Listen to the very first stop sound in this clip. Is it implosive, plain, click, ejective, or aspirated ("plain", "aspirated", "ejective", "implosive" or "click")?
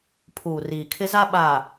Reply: aspirated